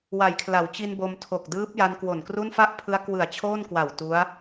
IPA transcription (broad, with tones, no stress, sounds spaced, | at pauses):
w a˩˦ j kʰ l a˩˦ w t͡ɕ i˧ n b o˧ m tʰ o˨˩ k̚ d ɯː˦˥ p̚ j a˧ n k w o˨˩ n k r u˥˩ n f a˥˩ ʔ pʰ ɯ˦˥ a̯ k w ɯ˨˩ a̯ t͡ɕʰ oː˥˩ n k w a˨˩ w t u˦˥ a̯